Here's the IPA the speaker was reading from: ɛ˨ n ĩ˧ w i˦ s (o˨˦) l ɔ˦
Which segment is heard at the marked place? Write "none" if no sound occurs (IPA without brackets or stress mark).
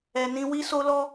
o˦